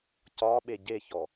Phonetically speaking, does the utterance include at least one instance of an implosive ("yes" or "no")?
yes